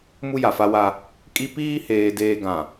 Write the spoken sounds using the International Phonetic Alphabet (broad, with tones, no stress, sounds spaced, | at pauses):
m u˦ j a˨ f a˦ w a˦ | kʼ i˦ p iː˦ h eː˨ d eː˨ ɡ ã˨